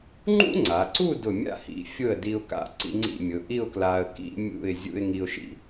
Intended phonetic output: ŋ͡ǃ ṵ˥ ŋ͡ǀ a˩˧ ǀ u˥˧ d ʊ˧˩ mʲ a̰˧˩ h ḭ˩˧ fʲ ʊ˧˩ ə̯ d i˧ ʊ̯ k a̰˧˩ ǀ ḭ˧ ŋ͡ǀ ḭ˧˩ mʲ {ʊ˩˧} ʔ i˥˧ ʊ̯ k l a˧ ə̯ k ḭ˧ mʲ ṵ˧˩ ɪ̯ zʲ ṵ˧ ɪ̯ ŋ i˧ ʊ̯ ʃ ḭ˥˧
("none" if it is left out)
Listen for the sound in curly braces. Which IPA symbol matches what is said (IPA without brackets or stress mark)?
ʊ˩˧